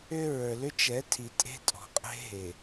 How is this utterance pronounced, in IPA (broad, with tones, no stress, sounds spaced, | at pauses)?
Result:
ʏ˦ ɹ ə˞˨ l ʏ˦ t͡ʃ ɛ˨˦ tʰ i˨ tʼ e̤˦ tʼ ɔ̤˨ qʼ e̤˦ ɦ e˨